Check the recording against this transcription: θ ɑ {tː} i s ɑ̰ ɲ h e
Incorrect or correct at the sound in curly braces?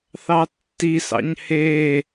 correct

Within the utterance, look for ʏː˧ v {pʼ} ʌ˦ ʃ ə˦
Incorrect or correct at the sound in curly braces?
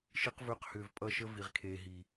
correct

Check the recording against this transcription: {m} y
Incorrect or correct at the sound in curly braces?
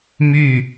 correct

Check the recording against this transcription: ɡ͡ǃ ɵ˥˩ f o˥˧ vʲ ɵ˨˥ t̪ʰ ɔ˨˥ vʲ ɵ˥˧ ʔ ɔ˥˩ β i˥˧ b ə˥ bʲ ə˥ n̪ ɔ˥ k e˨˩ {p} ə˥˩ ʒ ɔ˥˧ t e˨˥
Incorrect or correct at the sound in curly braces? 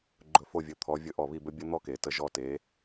incorrect: t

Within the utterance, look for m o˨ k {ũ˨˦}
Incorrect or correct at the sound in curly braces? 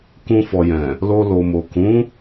correct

